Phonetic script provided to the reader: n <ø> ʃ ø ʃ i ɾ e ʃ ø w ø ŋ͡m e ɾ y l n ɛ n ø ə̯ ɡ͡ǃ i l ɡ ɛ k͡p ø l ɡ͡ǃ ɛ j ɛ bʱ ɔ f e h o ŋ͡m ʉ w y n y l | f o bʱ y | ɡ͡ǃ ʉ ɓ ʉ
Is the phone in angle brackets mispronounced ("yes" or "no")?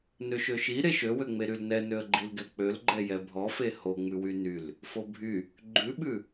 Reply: no